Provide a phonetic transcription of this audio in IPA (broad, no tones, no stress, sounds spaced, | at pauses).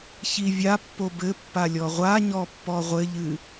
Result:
ç i vʲ a pː o b ɘ pː a lʲ ɔ ʁʷ a ɲ ɔ pː ɔ ʁʷ ɘ ʎ ɨ